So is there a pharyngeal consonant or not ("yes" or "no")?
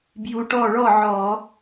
yes